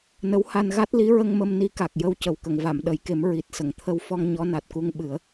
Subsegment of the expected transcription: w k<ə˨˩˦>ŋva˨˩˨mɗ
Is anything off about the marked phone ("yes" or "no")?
yes